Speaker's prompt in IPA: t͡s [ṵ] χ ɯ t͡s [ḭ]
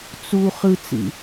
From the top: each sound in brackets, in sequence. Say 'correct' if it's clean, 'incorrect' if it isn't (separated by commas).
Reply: incorrect, correct